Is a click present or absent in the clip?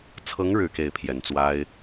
absent